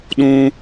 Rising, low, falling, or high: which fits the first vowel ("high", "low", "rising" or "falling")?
high